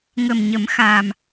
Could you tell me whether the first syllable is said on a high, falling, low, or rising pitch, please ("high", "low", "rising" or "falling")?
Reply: low